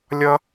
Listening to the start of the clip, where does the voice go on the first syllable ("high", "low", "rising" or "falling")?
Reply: high